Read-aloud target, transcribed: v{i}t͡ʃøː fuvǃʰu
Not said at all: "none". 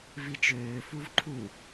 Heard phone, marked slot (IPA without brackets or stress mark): i